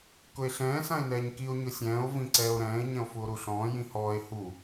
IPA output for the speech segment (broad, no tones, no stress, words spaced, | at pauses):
kʊe̯ɬɛ̃ː sãe̯nɛːɲkio̯ ɲʊsʲɛ̃ːo̯ vĩǀɛːo̯ɾɛ̃ːe̯ ɲɛ̃o̯fuo̯ɾuɬɔ̃ː jĩhɔːe̯ hu